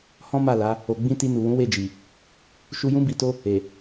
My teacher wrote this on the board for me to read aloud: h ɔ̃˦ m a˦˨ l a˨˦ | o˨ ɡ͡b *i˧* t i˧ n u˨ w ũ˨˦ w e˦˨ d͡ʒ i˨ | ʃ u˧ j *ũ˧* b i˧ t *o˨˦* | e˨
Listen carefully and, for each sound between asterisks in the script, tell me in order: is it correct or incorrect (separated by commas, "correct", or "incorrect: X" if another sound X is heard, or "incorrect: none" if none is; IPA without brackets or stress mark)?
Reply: incorrect: ĩ˧, incorrect: ũ˦, incorrect: o˦